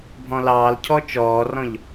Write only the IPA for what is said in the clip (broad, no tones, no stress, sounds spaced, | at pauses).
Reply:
bʱ ɔ̃ l ɑː l cʰ ɔ t͡ʃ ɔː r ɔ̃ ʎ